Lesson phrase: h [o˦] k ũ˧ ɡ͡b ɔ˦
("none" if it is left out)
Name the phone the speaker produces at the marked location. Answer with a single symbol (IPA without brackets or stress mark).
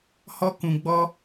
ɔ˦